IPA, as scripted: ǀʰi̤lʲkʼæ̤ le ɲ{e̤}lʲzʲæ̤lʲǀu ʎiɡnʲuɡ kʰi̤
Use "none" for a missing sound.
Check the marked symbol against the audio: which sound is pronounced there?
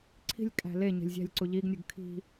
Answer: e̤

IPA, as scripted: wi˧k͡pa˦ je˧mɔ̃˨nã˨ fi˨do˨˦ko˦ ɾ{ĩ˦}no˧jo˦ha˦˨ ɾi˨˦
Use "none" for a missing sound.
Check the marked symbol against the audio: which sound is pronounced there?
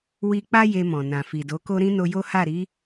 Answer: ĩ˦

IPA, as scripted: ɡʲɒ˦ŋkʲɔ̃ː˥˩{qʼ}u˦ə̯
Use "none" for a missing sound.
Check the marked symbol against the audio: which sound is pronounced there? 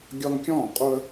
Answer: qʼ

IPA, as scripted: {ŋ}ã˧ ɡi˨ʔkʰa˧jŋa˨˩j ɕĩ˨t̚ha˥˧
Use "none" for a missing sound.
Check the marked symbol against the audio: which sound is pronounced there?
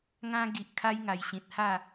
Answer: ŋ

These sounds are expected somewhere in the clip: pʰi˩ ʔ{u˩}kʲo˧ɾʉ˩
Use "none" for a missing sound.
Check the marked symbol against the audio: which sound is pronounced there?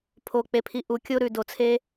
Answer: u˩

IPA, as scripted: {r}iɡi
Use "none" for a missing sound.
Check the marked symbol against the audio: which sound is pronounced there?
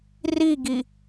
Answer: r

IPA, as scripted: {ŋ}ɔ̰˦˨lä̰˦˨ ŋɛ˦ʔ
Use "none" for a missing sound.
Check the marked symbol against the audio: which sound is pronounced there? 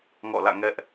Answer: ŋ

